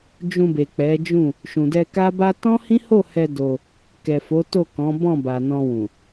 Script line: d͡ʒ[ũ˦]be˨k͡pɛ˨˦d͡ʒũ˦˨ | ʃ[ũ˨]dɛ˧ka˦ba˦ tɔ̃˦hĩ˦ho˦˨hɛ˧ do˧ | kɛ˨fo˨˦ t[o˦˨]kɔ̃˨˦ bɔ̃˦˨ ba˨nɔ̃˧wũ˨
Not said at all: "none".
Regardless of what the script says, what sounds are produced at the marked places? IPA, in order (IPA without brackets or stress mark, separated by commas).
ũ˧, ũ˨, o˦˨